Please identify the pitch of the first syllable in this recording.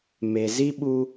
low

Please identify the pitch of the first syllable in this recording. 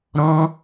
high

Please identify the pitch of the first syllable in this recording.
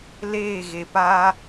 falling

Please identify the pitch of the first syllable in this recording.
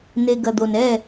low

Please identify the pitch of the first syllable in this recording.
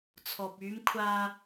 low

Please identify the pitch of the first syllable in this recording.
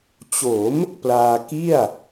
rising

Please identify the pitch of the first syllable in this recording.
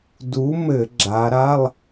rising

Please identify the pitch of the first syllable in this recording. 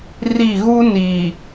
falling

